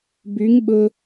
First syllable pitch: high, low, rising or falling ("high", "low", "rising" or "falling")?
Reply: rising